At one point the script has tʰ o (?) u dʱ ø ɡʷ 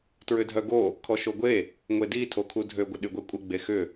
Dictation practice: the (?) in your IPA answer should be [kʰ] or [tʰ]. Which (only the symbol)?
kʰ